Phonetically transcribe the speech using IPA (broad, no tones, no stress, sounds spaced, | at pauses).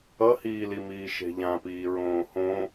ʌ h iː l i m iː ʃ e̤ ʎ ã p iː ɹ õː h õ